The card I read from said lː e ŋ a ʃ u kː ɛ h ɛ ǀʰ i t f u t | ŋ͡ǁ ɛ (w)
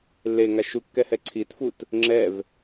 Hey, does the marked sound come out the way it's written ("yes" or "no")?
no